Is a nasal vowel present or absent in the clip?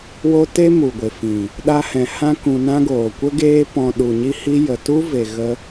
present